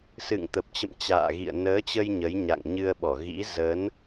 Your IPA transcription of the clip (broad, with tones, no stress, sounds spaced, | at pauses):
s ɨ̰˧˨ ŋ t̪ ə˨˩ p̚ t͡ɕ ə̰˧˨ m t͡ɕ a̰ː˧˨ ɣ ḭ˧˨ ə̯ n əː˨˦ t͡ɕ ə˧ j ɲ ə˨˦ j ɲ a̰˧˨ ŋ ɲ ɨ˧ ə̯ ɓ ɔ˧˩ ɣ ḭ˧˥ z ə˨˦ n